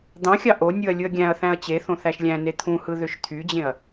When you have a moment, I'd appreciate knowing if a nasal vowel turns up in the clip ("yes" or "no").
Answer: yes